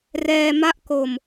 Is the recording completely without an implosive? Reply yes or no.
yes